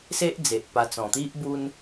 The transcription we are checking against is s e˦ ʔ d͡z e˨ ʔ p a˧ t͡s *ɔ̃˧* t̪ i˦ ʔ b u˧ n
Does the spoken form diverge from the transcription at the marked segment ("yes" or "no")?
yes